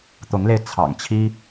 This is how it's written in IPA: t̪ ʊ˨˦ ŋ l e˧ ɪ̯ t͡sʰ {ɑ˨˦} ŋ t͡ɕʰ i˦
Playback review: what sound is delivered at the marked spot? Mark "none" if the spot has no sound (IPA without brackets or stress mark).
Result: ɑ̰˨˩